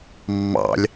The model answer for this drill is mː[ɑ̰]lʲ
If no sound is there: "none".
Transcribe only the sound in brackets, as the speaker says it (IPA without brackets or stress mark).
ɑ̰